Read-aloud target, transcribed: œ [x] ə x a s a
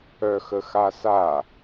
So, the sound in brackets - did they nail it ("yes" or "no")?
yes